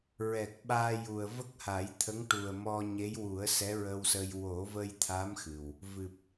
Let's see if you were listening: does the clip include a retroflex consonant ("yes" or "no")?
yes